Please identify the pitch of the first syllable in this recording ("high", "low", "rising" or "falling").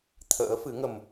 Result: rising